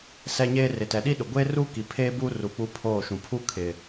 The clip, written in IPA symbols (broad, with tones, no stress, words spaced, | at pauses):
sɛ˦ɲeː˦ rɪ˨tɛ˨ɗi˦ɗʊ˨ ɡʷeː˦ruː˦ki˨ pʰeː˦buː˦ru˨ k͡pu˦pʰoː˦˨ʃũ˨ pʰu˦ kʰɪ˨